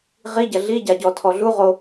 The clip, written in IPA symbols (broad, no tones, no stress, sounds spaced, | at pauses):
ʁ i ɟ ɐ ɮ i ɟ a ɟ ɔ tʰ ɔ ɮ u ʁ o